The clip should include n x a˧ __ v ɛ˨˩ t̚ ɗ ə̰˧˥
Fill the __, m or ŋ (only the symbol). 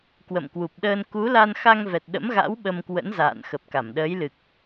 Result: ŋ